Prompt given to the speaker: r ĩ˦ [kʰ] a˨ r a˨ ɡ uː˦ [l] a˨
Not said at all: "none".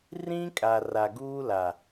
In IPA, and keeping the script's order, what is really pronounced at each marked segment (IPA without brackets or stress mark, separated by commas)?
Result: kʼ, l